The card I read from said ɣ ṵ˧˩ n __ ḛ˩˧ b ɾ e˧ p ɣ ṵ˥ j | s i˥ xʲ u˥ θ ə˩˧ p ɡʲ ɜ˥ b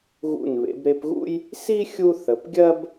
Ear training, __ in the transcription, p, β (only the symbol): β